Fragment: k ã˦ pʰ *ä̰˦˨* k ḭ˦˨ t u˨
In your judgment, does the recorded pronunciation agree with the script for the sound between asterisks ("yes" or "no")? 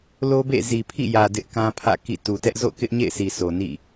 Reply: yes